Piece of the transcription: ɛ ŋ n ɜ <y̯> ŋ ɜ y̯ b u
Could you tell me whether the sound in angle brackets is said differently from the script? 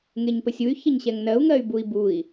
yes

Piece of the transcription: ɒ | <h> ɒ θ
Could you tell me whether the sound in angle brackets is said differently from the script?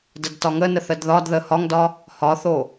no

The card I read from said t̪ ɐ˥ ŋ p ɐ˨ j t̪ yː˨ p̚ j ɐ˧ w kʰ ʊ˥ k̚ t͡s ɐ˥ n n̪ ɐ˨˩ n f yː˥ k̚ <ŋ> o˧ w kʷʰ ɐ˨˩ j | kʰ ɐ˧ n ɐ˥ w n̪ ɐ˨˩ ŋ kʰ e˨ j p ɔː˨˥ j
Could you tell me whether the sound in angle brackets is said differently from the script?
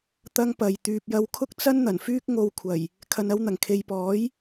no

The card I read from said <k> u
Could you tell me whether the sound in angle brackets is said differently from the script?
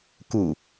no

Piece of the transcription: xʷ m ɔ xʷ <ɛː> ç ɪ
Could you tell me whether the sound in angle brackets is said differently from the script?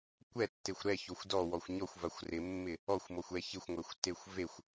yes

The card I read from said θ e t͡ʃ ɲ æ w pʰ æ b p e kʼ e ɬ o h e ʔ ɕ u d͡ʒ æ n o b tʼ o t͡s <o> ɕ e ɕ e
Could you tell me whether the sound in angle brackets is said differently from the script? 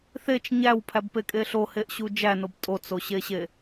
no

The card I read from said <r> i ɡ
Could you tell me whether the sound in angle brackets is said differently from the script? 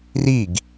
no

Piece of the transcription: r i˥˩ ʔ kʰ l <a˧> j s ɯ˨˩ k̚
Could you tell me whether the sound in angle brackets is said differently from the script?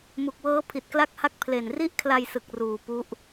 no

